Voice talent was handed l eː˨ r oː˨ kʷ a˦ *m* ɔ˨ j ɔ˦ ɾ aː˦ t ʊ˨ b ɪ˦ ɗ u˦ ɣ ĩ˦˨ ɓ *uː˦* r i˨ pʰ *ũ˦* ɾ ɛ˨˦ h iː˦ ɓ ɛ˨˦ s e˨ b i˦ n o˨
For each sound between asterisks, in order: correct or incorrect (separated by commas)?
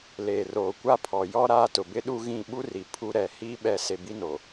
incorrect, incorrect, incorrect